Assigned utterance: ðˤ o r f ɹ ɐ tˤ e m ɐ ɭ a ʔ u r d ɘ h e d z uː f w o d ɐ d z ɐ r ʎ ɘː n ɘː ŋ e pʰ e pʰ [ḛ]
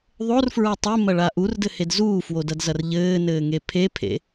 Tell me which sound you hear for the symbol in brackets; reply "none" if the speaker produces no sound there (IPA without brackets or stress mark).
ḛ